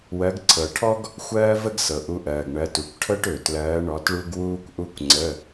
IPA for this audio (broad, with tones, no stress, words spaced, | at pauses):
wɜ˨˦ɡǀʰɤ˩ʈʰɔ˥ɡ | xʷɜː˥və˥ɡsɤ˩ʔu˨˦ ʔɜː˩ɡɳɜ˨˦tu˩kʷ ʈʰɤ˥ʈø˩tlɜː˨˦ ɳɔ˨˦tɭu˥ɡ wuː˥kʷʔu˥kʷŋ͡ǀə˧˥˧